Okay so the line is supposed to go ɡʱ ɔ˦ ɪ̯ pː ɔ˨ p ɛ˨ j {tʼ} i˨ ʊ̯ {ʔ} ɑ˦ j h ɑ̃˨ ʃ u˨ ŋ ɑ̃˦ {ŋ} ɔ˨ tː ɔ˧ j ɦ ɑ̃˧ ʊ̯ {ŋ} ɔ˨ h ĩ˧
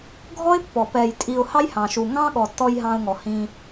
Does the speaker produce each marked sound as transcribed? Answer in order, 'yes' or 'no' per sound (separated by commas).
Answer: yes, no, no, yes